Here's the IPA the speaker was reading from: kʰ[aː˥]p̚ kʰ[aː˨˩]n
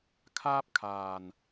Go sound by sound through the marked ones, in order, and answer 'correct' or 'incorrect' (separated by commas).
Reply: correct, correct